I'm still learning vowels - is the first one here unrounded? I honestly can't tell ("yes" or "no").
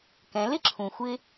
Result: yes